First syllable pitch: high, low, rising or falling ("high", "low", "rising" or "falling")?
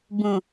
low